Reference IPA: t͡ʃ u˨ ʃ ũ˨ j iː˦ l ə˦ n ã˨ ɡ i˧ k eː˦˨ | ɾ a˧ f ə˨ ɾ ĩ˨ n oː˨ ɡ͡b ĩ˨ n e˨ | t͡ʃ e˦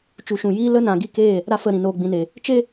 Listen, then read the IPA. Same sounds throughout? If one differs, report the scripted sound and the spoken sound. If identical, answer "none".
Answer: none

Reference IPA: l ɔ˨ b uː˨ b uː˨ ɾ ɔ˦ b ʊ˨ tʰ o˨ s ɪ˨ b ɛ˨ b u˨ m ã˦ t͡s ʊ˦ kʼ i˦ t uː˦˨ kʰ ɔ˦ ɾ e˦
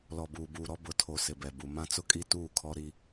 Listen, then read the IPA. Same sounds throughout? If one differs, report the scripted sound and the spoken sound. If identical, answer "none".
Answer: e˦ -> i˦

